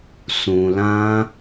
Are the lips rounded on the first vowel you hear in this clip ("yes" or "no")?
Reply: yes